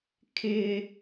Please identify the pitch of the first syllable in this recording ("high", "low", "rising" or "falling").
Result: high